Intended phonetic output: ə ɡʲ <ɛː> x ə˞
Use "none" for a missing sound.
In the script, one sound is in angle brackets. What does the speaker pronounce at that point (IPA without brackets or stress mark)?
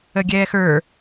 ɛː